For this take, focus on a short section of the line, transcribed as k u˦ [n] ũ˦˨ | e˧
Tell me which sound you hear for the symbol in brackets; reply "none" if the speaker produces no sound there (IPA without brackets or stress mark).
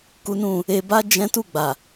n